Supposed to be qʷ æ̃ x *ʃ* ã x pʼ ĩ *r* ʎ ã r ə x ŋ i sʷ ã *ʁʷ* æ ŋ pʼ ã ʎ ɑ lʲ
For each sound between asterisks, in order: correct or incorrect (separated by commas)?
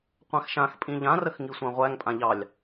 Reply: correct, incorrect, correct